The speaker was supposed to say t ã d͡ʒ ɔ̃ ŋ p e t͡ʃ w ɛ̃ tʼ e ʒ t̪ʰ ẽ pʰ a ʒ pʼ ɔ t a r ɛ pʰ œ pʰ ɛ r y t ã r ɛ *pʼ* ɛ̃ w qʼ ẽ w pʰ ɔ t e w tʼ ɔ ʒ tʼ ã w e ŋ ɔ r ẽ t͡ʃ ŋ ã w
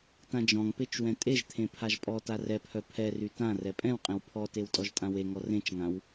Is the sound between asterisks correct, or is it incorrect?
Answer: correct